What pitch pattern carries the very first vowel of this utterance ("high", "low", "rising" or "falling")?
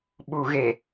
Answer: low